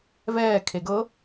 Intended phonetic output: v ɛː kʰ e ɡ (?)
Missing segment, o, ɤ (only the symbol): ɤ